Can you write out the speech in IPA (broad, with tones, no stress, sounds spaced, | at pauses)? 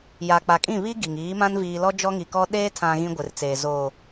j a˨ k͡p a˨ kʼ ĩ˦˨ β i˦ ɡ i˨ ŋ iː˨˦ m ã˦ n v iː˨ l ɔ˦ d͡ʒ ɔ˦ ŋ i˨ k ɔ˦ ɗ eː˦ tʰ ã˨ ɣ ĩ˦ ɡʷ ɪ˨ r t͡s eː˨ z oː˨